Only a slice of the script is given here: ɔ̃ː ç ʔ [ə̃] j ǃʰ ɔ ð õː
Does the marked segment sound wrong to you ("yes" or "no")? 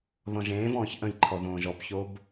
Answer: no